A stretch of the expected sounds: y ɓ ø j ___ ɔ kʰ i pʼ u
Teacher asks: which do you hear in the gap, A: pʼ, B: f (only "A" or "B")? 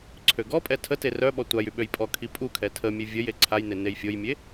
A